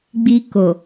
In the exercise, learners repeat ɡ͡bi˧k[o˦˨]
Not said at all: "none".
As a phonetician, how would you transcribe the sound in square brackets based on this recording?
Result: o˨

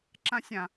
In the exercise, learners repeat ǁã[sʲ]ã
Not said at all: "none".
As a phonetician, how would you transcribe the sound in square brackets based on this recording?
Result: sʲ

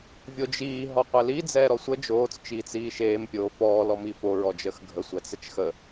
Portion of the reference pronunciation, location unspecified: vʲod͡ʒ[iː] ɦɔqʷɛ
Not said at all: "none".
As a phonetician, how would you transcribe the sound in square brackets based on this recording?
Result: iː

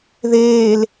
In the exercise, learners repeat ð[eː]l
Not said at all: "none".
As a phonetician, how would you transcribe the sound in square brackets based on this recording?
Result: eː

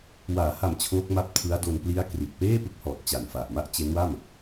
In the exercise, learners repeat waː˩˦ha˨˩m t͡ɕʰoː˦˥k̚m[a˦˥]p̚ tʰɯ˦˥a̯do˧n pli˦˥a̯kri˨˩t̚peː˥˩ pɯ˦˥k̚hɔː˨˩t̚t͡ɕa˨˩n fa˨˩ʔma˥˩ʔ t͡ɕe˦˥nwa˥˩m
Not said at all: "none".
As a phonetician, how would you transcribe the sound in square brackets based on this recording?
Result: a˦˥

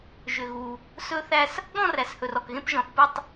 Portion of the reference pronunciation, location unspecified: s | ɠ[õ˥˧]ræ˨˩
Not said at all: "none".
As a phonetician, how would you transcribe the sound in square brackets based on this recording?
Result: ɔ̃˥˧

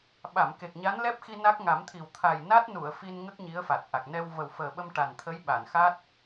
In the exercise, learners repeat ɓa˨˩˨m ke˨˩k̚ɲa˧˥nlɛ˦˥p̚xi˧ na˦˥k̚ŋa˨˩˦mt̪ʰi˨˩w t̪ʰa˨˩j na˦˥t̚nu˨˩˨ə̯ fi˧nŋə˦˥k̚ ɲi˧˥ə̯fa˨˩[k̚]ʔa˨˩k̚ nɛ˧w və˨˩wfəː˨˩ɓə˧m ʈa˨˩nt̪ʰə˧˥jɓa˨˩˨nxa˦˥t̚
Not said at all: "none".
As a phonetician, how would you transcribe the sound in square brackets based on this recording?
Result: t̚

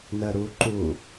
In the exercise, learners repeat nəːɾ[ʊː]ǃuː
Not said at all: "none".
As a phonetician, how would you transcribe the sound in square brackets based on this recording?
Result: uː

